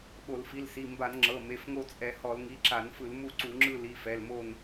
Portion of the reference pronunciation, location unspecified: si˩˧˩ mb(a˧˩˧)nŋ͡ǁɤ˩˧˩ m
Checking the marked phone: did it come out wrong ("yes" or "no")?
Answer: no